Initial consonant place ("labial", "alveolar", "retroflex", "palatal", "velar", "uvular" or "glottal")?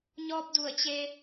palatal